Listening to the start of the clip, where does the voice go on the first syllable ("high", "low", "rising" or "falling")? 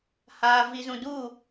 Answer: low